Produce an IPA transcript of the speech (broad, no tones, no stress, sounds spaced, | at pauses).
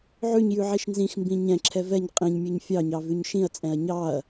ʕ ʉ ɲ j ʉ ʕ i ʃ n z ĩ x m b ĩ ɲ ɛ̃ ǁʰ ɛ v ɛ ɲ qʼ ĩ ɲ mʲ ʉ ɲ fʲ ɑ ɲ ɑ v ʉ ɲ ʃ ĩ ɐ̯ t͡sʼ ɛ̃ ɐ̯ ɲ ɑ ɐ̯